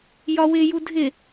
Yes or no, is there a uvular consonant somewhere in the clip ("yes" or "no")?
no